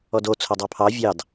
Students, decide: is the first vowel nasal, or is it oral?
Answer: oral